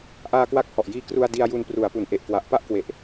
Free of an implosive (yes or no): yes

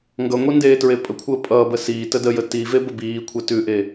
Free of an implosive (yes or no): yes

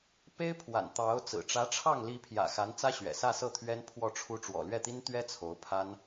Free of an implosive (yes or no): yes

